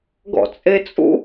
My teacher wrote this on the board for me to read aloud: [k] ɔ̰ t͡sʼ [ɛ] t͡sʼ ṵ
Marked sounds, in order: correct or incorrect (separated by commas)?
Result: incorrect, incorrect